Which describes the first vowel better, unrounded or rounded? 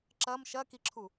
unrounded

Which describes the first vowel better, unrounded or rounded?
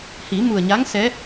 unrounded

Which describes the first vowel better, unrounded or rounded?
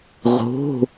rounded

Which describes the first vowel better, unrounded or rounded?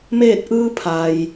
unrounded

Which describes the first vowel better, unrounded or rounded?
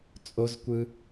rounded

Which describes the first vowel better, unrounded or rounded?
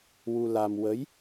rounded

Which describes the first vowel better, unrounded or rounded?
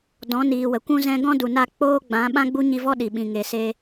rounded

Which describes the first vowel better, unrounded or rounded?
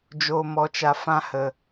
rounded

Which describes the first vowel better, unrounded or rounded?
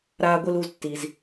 unrounded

